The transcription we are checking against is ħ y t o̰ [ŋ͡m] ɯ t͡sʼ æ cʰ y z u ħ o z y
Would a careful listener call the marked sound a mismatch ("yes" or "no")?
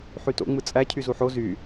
no